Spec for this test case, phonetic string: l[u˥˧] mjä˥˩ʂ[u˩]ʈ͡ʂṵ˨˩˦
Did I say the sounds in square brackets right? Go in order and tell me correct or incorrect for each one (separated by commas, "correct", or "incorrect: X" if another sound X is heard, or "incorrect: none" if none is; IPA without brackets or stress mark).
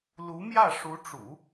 incorrect: u˧˥, incorrect: u˧˥